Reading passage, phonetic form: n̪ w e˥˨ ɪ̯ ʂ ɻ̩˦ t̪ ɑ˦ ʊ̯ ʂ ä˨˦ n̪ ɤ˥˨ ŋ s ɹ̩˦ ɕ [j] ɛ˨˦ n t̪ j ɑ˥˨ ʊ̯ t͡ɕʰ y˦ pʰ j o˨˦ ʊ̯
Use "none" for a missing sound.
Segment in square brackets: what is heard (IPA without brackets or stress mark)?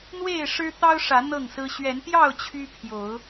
ɥ